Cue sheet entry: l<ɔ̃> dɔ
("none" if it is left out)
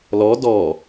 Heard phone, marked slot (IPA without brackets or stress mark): ɔ